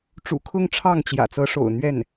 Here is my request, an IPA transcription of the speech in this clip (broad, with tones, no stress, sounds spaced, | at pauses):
ʈ͡ʂ ṵ˨˩ kʰ ʊ˥˧ ŋ ʈ͡ʂʰ ɑ˥˩ ŋ t͡ɕ j ä̰˨˩ t͡s ɤ˧˥ ʂ o̰˨˩ ʊ̯ n̪ ɥ ɛ˥˩ n